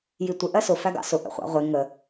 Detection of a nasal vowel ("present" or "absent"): absent